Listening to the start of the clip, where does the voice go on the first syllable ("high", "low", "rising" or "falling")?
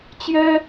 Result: high